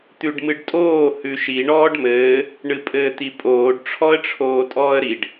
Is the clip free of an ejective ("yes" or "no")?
no